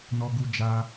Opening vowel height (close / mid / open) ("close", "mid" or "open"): mid